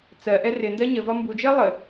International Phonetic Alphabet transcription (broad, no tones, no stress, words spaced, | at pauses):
t͡sɜʔɛ rɪndɜ ɲəvɒ mbud͡ʒɜ lˠə